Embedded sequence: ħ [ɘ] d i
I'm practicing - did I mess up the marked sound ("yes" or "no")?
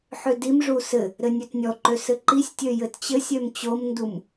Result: yes